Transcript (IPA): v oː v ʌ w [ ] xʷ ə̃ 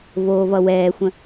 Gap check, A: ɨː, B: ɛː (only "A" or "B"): B